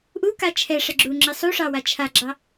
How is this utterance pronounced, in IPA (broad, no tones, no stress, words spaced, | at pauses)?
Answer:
ʔuka t͡ʃʰɛʂɛ ɡ͡ǁuŋ͡ǁɪ sˤuʂɑwa t͡ʃʰaɡ͡ǁɑ